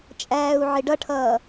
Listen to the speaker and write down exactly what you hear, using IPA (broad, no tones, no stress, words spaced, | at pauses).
t͡ʃʼæːu̯ʕɪɖʌʈʰʌː